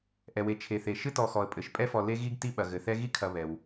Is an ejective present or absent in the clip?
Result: present